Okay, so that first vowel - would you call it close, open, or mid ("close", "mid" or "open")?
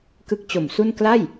close